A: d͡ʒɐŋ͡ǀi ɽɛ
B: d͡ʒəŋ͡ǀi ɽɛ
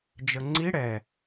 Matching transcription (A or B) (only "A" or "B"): B